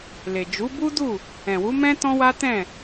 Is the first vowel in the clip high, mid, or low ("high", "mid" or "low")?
mid